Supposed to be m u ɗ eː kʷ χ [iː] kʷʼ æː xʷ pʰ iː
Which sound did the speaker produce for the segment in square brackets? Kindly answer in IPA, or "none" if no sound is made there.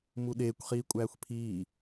iː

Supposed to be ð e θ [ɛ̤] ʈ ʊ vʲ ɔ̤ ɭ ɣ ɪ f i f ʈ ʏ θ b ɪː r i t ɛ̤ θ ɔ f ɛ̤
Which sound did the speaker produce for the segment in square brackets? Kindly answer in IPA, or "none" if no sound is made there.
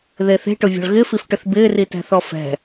e̤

